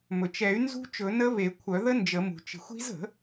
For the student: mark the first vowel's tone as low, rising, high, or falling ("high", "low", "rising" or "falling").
low